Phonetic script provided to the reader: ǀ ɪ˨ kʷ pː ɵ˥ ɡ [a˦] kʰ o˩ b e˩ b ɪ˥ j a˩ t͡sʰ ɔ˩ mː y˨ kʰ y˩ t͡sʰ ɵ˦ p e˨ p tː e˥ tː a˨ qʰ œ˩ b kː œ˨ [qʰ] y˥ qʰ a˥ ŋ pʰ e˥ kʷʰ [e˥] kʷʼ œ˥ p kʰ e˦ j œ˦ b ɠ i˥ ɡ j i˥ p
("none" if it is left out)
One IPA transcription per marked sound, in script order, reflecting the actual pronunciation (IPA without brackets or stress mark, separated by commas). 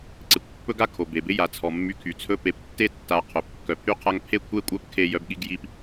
a˥, pʰ, e˥